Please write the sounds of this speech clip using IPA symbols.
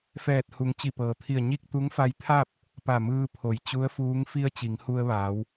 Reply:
f ɛː˧˩ t̚ h u˩˧ ŋ t͡ɕ i˧˩ p ɤː˩ t̪ʰ i˧˩ ə̯ ɲ i˥˨ k̚ t̪ u˧˥ ŋ f a˧ j t̪ʰ a˥˨ p̚ | p a˧˩ m ɯː˧ pʰ o˩˧ j t͡ɕ u˧˥ ə̯ f uː˧˥ ŋ f i˧ ə̯ t͡ɕ i˩˧ ŋ h u˧ ə̯ ʋ aː˩˧ w

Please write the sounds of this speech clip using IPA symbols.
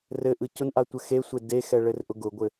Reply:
r ɘ ʔ ɯ c ʊ n ʔ a tʷ ɘ x e sʷ e d e x ɛ ɭ ɘ r ʔ ʊ ɡ ʊ ɡʷ ɘ

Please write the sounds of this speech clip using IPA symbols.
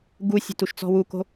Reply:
ɡ u sʲ a̤ t u ʃ t͡s ɔ̤ w u k o̤

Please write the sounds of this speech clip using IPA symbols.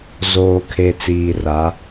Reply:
z oː˨ kʰ e˨ t͡s iː˨ r a˨˦

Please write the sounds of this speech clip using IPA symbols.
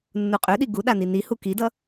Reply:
nː u qʼ ø ɗ i ɡ u ɗ a n i n i h u k i d ʌ

